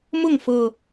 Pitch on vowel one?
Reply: falling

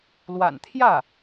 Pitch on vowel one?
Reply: low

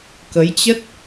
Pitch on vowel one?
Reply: rising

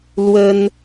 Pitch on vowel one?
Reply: high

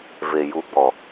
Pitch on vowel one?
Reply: low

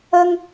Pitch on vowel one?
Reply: high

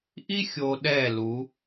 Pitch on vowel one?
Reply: high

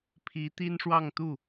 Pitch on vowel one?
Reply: rising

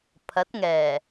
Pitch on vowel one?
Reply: rising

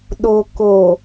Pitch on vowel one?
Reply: low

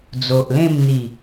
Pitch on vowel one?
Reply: low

